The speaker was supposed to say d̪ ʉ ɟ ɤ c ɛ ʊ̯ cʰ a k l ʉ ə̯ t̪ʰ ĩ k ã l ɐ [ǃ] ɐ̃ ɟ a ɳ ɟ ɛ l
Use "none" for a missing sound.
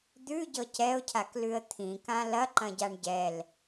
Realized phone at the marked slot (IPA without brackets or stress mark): ǃ